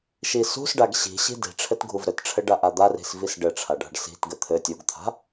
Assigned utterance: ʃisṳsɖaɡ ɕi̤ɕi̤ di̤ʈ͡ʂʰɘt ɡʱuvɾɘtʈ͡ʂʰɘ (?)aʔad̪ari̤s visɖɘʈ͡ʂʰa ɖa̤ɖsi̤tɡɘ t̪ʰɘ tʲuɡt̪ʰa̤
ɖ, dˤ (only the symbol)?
ɖ